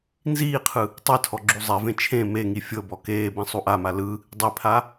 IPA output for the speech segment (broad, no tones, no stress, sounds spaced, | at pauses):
n z iː qʰ ɯ | tˤ ɛ tʰ ɔ ɡ͡ǁ u zˤ ɛ v ẽ t͡ʃʰ ẽ m e ŋ i fʲ ɤ b ɔ k eː b ẽ sˤ u ʔ a m a l ɯ | dˤ i pʰ a